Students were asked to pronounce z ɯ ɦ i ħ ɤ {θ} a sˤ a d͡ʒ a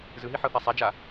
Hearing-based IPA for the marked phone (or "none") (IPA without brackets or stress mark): θ